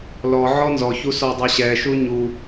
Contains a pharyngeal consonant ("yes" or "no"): yes